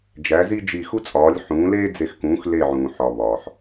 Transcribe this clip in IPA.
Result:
d͡ʒ æ˨˥ z i˥ d͡ʒ i˦˨ x u˥ t͡sʼ ɒː˨˥ lʲ ħ ũː˨˥ l eː˥ d͡z e˦˨ x k ũː˨˥ x l e˦˨ ʕ ũː˨ ħ ɒ˨ β ɒː˨ ħ

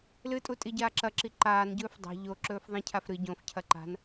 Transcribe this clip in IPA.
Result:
l ɨ tʼ u tʼ i ɟ aː ǁ ɐ ǁ i ǃ aː n ɟ ɵː f dˤ a̤ ʎ o ǁ ɵː f ðˤ ĩ cʰ a f ɾ ɨ ɟ õ f cʰ ɐ ǃ a̤ n

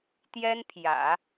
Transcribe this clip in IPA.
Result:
t̪ j ɛ˥ n pʰ j ä̰˨˩˦

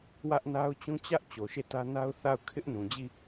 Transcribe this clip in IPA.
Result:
w ä˦ ʔ n a˦ ʊ̯ t͡ɕ ũ˦ t͡ɕ ä˦ ʔ t͡ɕ o˨ ʃ e˦˨ t ä˦ n a˦ ʊ̯ θ a˦˨ ʊ̯ kʰ ɪ˦ ʔ n ũ˨ d͡ʑ i˦˨

